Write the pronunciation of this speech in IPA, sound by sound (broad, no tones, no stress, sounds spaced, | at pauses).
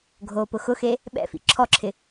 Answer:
ɡʱ oː p ʊ x ʊ x e | ɓ ɛ̰ f ḭ ǁʰ ɔ ǁʰ ɪ